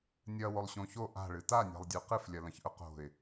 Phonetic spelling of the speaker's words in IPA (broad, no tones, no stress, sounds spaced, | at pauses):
nʲ ɐ w o lˠ ɕ õ ç o ʔ a̤ ɭ ɨ t a nʲ a̤ lˠ dʲ ʉ q ɨ f lʲ ɐ l ɐ̃ ç ʔ ɵ q o̤ ɪ̯